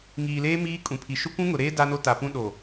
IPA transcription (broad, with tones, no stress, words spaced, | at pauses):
ŋiː˨leː˦ miː˦ kʼũ˨pʰi˨ ʃʊ˦kʷũ˦ŋʊ˨ɾeː˦ da˦no˦ta˨pũ˦ ɗo˨